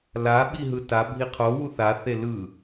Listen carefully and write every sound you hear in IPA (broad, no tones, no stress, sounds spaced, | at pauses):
l a ɓ i ɦ ɯ t a bʱ i qʰ o w u θ a θ e l ɯ